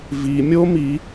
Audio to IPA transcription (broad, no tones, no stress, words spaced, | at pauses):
vi mʲo mi